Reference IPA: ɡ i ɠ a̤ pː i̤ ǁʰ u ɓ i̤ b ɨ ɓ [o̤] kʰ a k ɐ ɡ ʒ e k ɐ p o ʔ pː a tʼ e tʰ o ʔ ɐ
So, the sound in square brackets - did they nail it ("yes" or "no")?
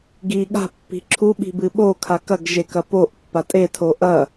no